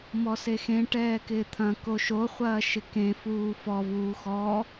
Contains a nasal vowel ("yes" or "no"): yes